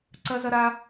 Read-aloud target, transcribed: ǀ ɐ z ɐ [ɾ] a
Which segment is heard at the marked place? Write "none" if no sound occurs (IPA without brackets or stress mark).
ɾ